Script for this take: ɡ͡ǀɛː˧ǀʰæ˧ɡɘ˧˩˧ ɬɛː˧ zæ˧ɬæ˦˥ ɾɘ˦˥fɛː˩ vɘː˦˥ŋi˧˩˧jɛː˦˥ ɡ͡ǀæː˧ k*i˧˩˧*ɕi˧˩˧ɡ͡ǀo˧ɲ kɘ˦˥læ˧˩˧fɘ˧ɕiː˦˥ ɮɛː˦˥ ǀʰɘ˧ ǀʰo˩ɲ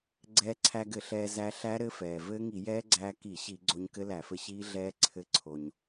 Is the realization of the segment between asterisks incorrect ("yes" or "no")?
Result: no